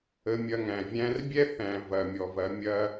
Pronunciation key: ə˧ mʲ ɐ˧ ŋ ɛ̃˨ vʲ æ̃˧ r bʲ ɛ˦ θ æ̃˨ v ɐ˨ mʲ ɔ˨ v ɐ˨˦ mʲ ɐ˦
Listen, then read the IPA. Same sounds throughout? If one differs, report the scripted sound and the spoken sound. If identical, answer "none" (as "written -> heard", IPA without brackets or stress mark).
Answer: ɛ̃˨ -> æ̃˨